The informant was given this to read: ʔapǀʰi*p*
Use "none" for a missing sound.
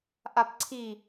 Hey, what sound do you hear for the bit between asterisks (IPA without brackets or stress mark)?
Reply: none